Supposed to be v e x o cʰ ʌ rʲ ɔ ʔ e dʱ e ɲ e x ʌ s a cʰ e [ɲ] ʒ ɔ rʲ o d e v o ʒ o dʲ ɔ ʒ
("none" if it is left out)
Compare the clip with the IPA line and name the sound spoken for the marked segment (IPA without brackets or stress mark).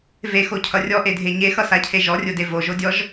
none